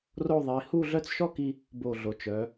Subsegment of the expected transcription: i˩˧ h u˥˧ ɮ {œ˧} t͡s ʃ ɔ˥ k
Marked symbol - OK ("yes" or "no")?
no